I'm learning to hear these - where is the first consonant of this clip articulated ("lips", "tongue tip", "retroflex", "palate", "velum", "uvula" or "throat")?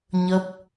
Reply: palate